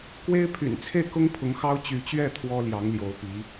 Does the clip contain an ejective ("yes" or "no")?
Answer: no